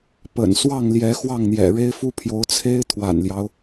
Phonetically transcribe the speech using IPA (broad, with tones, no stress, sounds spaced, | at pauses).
p ə̰˨˩ n s w ɑ˥˨ ŋ l j ɛ˨˦ x w ɑ˥˨ ŋ n̪ j ɛ̰˨˩ ɻ e˦ ɪ̯ f u˦ pʰ j o˨˦ ʊ̯ t͡sʰ e˦ ɪ̯ t̪ʰ w a̰˨˩ n l j ɑ˦ ʊ̯